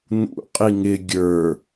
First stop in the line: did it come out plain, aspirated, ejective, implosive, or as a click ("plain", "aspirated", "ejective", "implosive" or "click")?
ejective